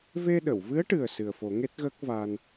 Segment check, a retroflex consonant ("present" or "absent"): present